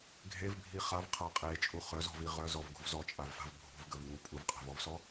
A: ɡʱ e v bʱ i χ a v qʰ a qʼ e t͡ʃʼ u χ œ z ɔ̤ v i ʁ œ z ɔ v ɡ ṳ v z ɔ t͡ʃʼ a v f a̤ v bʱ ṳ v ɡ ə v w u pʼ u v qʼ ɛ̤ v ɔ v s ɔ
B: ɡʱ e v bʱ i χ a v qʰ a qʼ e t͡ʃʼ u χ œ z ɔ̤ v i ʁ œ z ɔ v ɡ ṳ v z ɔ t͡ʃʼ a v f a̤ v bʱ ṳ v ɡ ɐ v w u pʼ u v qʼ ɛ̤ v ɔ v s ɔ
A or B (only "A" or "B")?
A